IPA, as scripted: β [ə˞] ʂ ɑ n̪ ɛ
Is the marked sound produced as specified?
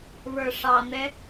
yes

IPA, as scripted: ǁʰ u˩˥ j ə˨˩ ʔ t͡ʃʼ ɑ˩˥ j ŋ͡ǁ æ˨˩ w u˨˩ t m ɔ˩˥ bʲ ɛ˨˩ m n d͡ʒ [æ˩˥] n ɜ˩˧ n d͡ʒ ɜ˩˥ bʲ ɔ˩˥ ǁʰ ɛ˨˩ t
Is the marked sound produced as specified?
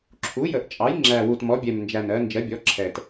no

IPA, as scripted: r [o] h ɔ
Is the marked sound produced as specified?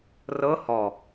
no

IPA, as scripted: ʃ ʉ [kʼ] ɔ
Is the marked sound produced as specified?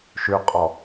no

